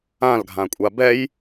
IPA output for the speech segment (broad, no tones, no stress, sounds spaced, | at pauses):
ã l ɡʱ ã kʷʼ a b ɛ j